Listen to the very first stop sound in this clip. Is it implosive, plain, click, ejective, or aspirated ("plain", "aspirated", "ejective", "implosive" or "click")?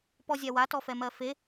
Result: plain